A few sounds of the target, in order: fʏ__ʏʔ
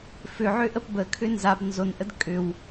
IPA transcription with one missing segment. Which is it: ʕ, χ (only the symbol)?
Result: ʕ